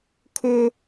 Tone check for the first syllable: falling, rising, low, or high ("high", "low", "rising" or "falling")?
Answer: high